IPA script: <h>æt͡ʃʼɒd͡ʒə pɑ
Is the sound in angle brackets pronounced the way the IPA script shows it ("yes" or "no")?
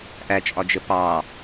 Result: no